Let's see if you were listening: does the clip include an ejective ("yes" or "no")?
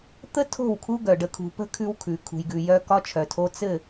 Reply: no